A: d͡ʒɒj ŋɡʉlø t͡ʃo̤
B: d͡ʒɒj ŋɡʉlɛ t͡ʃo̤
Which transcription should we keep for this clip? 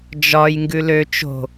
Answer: A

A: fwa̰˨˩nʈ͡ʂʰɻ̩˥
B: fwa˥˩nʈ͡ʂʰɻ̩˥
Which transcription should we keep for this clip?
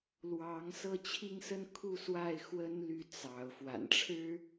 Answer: A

